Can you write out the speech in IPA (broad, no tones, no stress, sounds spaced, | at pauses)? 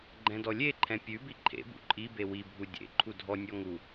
ɡ͡ǃ ɛ̃ d ɔ lʲ e ǃʰ ɛ̃ pʲ ʉ b i ǃʰ ḛ b ṵ ǃʼ i b e w i bʱ u dʲ ḛ ǃʰ u dʱ ɔ nʲ ɔ ŋ u